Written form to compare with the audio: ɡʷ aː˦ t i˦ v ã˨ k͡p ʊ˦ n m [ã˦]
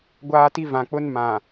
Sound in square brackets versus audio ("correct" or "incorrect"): incorrect